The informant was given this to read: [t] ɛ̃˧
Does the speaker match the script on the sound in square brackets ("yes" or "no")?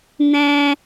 no